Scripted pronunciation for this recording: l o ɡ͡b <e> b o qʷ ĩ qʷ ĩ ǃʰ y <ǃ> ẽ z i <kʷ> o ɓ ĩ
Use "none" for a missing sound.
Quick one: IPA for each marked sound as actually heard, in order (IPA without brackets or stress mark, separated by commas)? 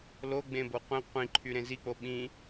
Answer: ẽ, ɾ, k͡p